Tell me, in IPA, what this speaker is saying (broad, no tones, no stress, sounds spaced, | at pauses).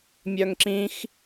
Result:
mʲ œ ŋ ǁ ĩ x